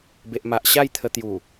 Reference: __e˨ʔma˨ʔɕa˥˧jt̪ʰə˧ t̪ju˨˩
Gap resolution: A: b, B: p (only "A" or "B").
A